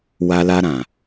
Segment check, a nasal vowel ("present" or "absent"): present